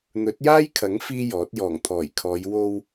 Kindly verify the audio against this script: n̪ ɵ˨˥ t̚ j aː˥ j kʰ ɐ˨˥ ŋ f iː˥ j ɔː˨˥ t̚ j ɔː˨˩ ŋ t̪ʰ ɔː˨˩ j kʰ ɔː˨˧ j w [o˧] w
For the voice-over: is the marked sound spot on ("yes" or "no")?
yes